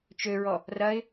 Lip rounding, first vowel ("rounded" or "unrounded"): rounded